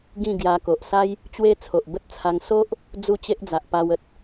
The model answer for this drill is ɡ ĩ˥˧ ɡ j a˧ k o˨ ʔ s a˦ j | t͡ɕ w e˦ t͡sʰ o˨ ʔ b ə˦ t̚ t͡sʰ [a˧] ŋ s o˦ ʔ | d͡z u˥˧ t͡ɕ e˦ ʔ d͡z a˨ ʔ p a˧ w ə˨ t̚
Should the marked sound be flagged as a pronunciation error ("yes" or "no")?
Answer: no